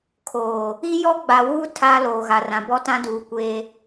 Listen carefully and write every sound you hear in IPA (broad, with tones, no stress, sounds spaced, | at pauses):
kʰ oː˨ | i˦ j ɔ˦ ɡ͡b a˨ w uː˦ tʰ a˨ l oː˨ ɣ a˨ r ã˨ b ɔ˦ t ã˦ d uː˨ kʷ eː˦